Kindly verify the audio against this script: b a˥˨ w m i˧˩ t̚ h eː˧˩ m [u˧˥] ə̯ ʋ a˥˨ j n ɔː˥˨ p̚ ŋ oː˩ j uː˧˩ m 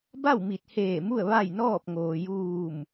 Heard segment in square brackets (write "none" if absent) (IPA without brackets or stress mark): u˥˨